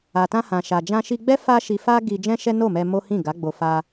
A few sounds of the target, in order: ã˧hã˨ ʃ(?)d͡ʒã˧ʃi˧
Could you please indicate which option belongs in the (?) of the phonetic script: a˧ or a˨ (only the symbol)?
a˨